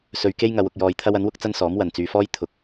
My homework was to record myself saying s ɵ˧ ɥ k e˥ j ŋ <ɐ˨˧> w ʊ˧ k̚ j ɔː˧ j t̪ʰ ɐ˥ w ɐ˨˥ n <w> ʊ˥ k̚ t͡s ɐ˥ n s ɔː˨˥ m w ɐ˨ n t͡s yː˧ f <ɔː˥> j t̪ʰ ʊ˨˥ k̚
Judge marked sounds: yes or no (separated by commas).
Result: yes, yes, yes